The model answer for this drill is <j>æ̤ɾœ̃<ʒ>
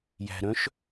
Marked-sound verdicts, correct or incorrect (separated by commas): correct, incorrect